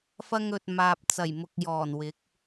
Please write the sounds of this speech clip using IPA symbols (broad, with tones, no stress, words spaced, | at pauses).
fɐ˧ŋ ɵ˨t̚maː˨p̚ t͡sɐ˨˩jmʊ˨k̚jɔː˨˩n wɪ˨˥k̚